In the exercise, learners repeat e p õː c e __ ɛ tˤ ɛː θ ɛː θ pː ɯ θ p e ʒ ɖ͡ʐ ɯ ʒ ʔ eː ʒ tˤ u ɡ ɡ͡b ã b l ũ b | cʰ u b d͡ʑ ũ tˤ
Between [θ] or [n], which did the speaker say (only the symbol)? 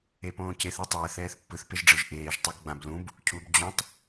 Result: θ